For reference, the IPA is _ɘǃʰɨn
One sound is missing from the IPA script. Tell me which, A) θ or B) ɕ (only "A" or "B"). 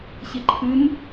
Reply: B